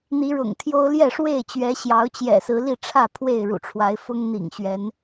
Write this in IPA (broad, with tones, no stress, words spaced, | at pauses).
n̪i˨˦ɻʊ̰˨˩ŋt̪ʰjo˦ʊ̯ ljɛ˥˨ʂwe˥˨ɪ̯t͡ɕɥɛ˨˦ɕjɑ˨˦ʊ̯ t͡ɕjɛ̰˨˩sɹ̩˨˦li˥˨ʈ͡ʂʰä˥˨ pʰwe˥˨ɪ̯ɻṵ˨˩ʈ͡ʂʰwa˨˦ɪ̯ fʊ˦ŋn̪ḭ˨˩ŋ ɕɥɛ˨˦n